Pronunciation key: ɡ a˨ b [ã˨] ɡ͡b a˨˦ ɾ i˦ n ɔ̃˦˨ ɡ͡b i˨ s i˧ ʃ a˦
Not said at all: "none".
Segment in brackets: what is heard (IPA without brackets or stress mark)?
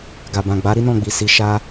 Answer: ã˨